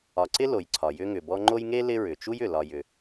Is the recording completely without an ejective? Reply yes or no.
yes